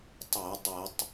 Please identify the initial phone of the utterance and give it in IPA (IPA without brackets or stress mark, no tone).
tˤ